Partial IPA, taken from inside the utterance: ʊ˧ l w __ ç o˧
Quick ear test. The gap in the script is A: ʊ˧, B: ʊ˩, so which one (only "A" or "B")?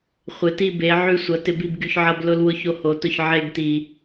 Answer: A